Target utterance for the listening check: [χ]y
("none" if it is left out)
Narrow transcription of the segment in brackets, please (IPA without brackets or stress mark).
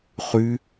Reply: χ